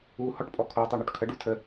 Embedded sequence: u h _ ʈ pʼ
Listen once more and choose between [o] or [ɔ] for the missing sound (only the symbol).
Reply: ɔ